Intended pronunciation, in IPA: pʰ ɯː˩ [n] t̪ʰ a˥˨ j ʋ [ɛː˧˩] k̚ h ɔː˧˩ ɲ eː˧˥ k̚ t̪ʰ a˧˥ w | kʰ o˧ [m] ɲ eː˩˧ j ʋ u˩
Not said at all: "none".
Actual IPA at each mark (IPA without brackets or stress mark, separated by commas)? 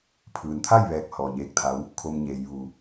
n, ɛː˧˩, m